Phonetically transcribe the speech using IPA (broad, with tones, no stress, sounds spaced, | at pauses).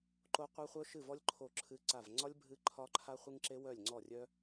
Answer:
ǃ o˥ qʷ œ˥ χʷ œ˥ ʃ ɨ˥˧ v ɔ˥ lʲ ǃʰ o˥˧ ǁʰ ɨ˥ ǀ a˥˧ v ŋ͡ǀ ɒ˥ lʲ bʱ ɨ˥ ǃʰ ɒ˥ ǃʰ a˥ χʷ ɨ˥ ŋ ǁ e˥ w œ˥˧ lʲ ŋ͡ǀ ɔ˥˧ rʲ œ˥